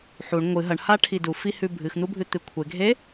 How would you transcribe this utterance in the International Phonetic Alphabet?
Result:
ħ u ɳ ŋʷ ɨ ɦ ɐ ɳ h a ʈʰ i d u f i h ʉ bʱ ɨ x n̪ u bʱ ɨ t̪ ɨ kʷʰ e ɡʱ e

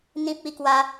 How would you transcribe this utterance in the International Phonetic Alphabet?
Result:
n̪ ĩ˦ p̚ i˦ k w a˦

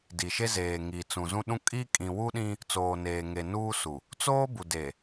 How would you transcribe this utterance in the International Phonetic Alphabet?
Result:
d i˨ ʃ e˦ z eː˨ ŋ i˨ t͡s ũ˨ z ũ˦ ɗ ũ˦ kʼ i˦ kʼ ĩ˨ w u˦ ɗ ĩ˦ | t͡s oː˨ n eː˨ ŋ e˨ n uː˦ s u˨ | t͡s oː˦ b u˨ d e˨

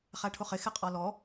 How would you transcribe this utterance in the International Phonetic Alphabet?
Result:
χ æ ʈʰ ʊ χ ɪ x ɪ qʼ ɔ l ɔ

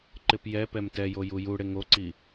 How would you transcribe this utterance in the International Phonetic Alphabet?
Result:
ǃ ɪ p j ɛ p ɛ m t ɛ j o j u j u ɽ ɪ ŋ o ǀ i

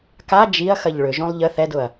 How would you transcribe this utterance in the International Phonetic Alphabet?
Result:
k a d͡ʒ i ɐ̯ x ɐ ʎ ɭ ʏ ʒ õ lˠ ʎ ə θ ɛ d ʊ ɐ̯

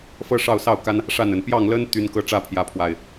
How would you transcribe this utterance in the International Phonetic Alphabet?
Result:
f ɤ˥˨ ʂ ɑ˥˨ ʊ̯ s ɑ˥˨ ʊ̯ k a˦ n | ʂ a˥˨ n ə˨˩ n p j ɑ˥˨ ŋ l ə˦ n t̪ y˦ n k ɤ˦ ʈ͡ʂ ä˥˨ pʰ j ä˨˦ pʰ w a˨˩ ɪ̯

